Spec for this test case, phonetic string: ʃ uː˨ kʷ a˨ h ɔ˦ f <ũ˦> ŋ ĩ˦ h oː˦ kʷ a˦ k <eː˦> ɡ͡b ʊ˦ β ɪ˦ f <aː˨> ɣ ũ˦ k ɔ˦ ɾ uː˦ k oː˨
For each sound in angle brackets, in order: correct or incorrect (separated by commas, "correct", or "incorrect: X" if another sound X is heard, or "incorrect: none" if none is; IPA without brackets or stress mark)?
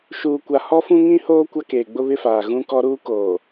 correct, incorrect: eː˨, correct